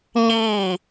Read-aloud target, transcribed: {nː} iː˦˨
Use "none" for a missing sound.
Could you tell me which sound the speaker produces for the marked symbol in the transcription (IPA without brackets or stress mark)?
ɲ